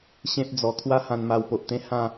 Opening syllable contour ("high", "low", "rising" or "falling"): high